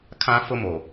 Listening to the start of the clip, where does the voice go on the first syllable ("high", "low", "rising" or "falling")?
high